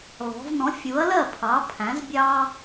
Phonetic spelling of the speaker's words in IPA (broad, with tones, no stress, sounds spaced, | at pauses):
l ɔ̤˩˧ v n ɔ̃˩˥ fʲ u˩˥ ɐ̯ l ɜ˥˩ pʰ ɑ˩˥ pʰ æ̃˩˥ z bʲ ɑ˦